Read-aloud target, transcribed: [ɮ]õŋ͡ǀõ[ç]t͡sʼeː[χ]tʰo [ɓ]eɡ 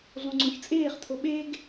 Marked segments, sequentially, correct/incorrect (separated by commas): correct, correct, correct, correct